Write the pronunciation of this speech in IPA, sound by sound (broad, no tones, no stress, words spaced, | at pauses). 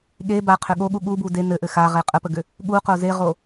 ɠe baqʰʏ ɠoɠu ɠubu de nɘʔɘ xaʁe qʼəpəɡʏ | ɠuqo zeʁo